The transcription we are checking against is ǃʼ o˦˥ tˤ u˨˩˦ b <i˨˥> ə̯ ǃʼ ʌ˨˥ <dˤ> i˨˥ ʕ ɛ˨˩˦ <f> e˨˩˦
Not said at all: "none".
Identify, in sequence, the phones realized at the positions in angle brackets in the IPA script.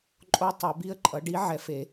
i˦˥, ɖ, f

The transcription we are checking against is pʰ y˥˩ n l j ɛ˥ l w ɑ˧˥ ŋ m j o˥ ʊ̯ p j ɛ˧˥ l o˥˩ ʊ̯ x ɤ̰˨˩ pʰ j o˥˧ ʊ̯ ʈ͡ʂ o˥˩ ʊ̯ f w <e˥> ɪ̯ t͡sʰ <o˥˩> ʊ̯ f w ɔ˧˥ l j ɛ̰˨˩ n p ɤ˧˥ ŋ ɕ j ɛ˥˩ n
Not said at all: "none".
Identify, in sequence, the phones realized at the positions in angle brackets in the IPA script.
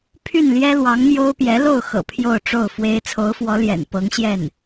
e˥, o˧˥

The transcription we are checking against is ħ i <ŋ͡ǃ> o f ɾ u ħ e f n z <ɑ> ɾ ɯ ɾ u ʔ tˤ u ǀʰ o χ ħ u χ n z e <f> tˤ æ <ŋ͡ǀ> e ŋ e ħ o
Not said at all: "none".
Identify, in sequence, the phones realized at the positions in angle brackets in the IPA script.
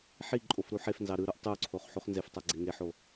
ǃʼ, ɑ, f, ɡ͡ǀ

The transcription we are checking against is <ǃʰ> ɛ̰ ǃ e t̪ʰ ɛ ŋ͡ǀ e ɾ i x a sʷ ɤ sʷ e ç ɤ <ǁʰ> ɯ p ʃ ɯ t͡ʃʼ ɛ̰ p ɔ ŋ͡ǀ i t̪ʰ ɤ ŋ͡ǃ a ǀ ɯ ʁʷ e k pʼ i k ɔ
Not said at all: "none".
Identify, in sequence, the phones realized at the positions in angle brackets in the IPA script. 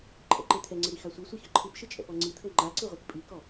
ǃʰ, ǃʰ

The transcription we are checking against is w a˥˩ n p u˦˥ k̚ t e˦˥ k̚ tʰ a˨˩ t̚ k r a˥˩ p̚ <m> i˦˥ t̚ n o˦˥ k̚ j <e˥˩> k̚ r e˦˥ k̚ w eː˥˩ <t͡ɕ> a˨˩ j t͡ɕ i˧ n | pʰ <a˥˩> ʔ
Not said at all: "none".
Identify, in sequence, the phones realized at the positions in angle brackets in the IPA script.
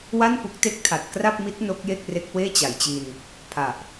m, e˥˩, t͡ɕ, a˨˩

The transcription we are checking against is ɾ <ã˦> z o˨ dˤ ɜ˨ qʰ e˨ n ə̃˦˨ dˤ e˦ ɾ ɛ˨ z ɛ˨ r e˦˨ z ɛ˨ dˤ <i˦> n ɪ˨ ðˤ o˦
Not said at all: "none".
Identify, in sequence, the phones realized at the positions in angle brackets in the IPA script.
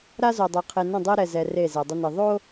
a˦, ɪ˦

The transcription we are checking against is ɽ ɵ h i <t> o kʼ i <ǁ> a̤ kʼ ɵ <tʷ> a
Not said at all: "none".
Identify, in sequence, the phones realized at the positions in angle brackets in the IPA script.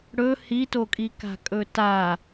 t, k, t

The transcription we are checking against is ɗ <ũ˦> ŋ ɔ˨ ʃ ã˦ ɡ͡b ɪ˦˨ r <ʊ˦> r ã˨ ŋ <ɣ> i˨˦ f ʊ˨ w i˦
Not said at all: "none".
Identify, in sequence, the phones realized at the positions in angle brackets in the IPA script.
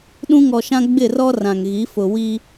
ũ˦, ɔ˦, ɣ

